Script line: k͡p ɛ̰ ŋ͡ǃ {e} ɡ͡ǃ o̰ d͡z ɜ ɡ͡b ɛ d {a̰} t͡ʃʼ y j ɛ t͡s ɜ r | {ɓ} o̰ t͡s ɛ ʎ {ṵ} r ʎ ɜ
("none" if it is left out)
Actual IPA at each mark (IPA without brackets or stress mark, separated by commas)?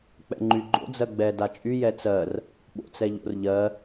y, a, ɓ, o̰